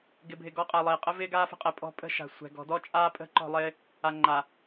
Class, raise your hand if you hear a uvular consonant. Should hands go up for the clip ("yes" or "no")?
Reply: yes